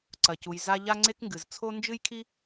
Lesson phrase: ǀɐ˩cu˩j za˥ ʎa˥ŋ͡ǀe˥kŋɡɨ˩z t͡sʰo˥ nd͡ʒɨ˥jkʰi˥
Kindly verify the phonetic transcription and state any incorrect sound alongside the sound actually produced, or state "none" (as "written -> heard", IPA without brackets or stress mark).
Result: none